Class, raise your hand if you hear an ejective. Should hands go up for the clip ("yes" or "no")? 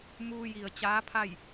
no